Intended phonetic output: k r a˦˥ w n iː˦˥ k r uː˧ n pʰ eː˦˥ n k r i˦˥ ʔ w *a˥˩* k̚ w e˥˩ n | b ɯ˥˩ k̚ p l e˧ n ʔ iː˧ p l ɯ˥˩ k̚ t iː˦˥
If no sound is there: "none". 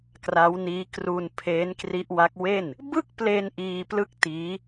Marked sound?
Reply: a˦˥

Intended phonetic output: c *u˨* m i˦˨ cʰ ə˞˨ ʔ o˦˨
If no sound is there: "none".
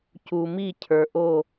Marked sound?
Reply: u˨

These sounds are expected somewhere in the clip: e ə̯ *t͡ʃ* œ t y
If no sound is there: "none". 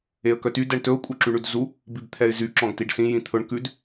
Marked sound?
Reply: k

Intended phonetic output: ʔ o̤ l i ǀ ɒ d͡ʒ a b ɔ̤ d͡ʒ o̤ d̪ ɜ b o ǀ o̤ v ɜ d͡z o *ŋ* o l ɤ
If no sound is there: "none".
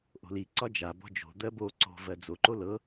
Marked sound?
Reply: ǃ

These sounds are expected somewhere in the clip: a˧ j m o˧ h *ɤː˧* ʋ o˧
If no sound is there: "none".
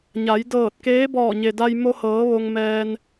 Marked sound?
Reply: ɤː˩˧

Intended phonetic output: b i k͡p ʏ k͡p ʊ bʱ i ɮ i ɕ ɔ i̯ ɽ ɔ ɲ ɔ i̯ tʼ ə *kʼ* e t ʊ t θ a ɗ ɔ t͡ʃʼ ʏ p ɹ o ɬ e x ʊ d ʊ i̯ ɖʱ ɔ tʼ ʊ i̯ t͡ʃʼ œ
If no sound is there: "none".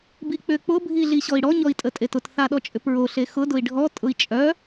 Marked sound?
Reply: tʼ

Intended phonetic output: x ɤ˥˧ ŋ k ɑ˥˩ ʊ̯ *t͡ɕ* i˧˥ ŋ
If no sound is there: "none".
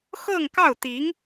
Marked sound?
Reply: t̪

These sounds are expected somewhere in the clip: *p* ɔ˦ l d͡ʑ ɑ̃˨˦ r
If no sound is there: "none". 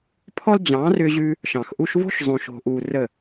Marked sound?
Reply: pʰ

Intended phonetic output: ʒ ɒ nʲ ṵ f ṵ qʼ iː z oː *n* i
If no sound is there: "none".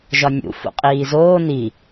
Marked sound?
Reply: n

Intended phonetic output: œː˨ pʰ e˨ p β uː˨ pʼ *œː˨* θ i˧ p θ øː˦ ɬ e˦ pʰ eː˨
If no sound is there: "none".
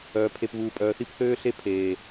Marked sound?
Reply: œː˨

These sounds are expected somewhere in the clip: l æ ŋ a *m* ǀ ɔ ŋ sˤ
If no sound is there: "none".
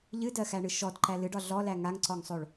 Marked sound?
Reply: ŋ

